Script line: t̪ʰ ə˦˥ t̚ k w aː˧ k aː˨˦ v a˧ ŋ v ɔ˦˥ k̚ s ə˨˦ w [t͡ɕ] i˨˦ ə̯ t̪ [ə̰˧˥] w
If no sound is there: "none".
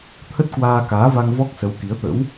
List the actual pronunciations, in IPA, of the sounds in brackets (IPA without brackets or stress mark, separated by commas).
k, ə̰˧˥